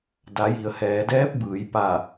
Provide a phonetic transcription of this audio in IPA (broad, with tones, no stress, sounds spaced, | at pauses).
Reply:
d a˩˧ j i˩ ə̯ h ɛː˩˧ d ɛː˧˥ p̚ b ɯː˩˧ j p a˧˩